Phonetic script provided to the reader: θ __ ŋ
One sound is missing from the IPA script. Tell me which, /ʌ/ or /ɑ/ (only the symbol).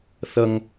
ʌ